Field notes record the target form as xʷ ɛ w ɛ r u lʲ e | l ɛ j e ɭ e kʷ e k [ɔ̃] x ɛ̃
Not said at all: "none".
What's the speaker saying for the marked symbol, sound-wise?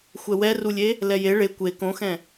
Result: õ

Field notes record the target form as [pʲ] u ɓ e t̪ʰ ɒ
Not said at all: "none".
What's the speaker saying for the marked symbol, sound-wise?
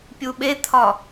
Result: pʲ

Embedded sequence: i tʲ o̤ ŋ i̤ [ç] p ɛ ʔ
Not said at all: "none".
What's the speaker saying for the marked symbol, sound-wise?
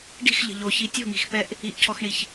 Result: x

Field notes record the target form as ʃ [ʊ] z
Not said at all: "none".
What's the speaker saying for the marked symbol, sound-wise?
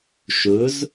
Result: ʊ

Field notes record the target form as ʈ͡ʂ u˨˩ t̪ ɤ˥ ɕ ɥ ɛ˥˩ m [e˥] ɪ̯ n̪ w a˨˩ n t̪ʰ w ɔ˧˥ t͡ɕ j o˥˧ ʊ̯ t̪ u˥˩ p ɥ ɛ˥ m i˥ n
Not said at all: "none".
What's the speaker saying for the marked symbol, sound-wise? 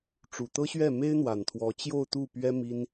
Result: e˥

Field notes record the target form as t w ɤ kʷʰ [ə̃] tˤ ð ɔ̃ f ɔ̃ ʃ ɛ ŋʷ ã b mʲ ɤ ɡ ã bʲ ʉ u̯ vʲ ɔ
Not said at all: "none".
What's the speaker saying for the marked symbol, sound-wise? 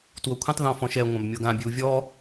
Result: ə̃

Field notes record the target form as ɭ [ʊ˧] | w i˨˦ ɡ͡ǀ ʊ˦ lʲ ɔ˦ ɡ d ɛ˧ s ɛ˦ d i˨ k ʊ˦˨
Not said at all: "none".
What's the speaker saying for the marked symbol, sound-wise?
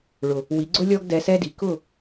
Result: ʊ˨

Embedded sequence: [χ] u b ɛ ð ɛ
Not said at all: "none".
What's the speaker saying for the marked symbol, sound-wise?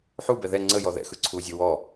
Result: ħ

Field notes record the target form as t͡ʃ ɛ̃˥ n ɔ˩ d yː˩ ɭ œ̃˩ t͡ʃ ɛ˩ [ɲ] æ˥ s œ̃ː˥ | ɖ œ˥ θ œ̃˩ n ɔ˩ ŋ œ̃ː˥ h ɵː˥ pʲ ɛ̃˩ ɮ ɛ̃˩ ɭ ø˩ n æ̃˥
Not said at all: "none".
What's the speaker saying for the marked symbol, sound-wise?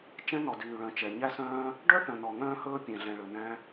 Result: ɲ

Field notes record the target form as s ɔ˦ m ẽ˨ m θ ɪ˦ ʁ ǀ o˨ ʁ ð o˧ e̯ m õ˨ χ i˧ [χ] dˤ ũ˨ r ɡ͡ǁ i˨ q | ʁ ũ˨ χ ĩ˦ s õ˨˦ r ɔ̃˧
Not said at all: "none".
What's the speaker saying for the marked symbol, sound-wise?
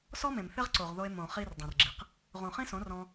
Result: r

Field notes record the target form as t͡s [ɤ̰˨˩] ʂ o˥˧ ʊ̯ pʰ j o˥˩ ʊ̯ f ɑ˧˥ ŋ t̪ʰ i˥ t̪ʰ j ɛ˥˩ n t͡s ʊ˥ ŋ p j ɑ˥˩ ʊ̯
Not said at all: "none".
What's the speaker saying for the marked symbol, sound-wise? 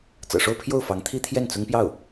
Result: ɤ̰˨˩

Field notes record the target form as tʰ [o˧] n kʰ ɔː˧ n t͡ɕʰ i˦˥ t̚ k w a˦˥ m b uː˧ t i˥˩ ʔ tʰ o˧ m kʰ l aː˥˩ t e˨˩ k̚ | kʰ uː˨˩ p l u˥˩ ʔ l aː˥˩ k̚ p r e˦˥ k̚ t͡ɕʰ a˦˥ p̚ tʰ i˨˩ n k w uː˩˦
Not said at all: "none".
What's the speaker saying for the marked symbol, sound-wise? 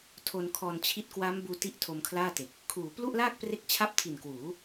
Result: o˧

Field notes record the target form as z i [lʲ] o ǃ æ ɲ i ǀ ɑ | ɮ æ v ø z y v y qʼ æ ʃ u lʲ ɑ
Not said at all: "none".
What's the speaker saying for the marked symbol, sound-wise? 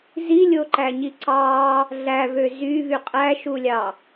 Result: lʲ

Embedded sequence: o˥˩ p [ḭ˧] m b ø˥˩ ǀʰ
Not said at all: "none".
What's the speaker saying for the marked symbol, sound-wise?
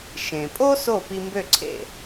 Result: i˧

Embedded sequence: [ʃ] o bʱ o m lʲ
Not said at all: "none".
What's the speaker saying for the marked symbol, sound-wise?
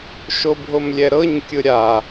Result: ʃ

